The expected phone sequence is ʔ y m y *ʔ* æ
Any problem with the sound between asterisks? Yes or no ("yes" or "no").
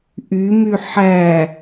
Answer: yes